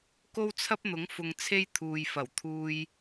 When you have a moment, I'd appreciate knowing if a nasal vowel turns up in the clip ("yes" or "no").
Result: no